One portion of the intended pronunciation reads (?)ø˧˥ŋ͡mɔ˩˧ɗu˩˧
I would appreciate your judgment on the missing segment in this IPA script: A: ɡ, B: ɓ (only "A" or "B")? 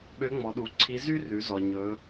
B